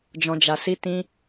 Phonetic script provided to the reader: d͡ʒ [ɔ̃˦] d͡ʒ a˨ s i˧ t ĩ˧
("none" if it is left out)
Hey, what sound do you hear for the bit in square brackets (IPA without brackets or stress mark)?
ɔ̃˨